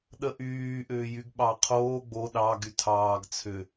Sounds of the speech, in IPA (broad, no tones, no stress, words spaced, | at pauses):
ɗəʔyːʔʏːjyɡ ɓɑqʰoː ɡ͡bo ɗɑ ɡytʰɑːɡ t͡sʰʏ